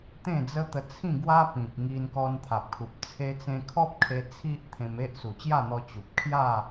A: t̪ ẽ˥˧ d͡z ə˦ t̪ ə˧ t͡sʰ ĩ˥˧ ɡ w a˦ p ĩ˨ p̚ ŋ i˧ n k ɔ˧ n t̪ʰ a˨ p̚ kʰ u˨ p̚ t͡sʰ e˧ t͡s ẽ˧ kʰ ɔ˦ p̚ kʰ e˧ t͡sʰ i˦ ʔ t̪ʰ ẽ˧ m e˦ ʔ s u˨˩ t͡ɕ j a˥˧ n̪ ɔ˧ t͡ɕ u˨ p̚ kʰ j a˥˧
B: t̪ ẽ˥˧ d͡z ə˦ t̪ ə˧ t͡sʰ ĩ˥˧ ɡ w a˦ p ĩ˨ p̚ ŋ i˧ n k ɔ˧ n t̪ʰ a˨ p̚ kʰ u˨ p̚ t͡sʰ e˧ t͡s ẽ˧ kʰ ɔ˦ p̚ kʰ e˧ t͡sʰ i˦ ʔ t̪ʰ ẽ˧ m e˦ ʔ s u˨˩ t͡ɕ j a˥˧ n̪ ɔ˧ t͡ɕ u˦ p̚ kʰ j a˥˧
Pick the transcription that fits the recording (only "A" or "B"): A